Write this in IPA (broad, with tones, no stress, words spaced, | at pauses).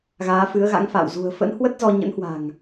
ɣaː˨˦fɨ˨˦ə̯ɣa̰˧˥ŋfa̰ː˧˨w zṳ˨˩ə̯fə̰˧˥n hwə˦˥t̚zɔ˧ɲə̰˧˥nhwa̤˨˩ŋ